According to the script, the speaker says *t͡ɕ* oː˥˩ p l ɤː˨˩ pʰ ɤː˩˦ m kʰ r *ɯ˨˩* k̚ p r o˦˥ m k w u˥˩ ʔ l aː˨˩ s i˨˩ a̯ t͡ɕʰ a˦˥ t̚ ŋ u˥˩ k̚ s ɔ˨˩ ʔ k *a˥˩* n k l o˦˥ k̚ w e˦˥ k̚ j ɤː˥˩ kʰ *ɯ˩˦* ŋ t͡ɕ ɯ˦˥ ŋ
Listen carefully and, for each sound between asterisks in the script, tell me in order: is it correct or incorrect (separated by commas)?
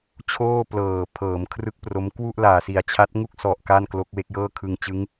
incorrect, incorrect, correct, incorrect